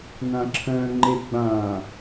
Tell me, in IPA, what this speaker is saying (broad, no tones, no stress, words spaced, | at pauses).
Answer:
nãǁʰœ̃ ŋ͡ǃeɡ͡bã